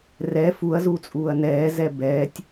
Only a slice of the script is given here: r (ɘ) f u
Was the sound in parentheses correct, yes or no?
no